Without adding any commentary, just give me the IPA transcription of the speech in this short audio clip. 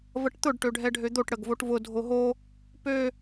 v ə ʈ t̪ ʊ ɖ ʈ ø ɖʱ ɛ ɖʱ ø d̪ o ʈ ɽ ə ɡ v o ʈ v ʊ dʱ o ɦ o | p ø

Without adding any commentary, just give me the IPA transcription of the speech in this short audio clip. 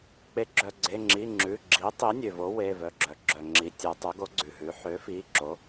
k͡p e˩˥ ɡ͡ǁ œ˩ ɡ͡ǀ e˩˧˩ ŋ͡ǁ i˩˧˩ ŋ͡ǁ ʉ˩˧˩ ɡ͡ǁ i˩˥ tˤ i˩˥ nʲ ø˩ v o˩˥ w e˩˧˩ v œ˩˧˩ ɡ͡ǁ œ˩˧ ɡ͡ǁ œ˩ ŋ͡ǁ i˩˧ tʲ œ˩˧ tˤ ø˩˥ ɡ o˩˥ ɡ͡ǀ ʉ˩ ɦ ʉ˩˥ ħ ø˩˥ f i˩˧˩ ǁ o˩˥

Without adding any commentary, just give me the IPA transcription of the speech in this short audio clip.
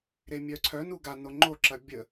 ɾ e mʲ œ ǀʰ œ n u ɡ a n o ŋ͡ǃ o ǁ ɐ bʲ ə

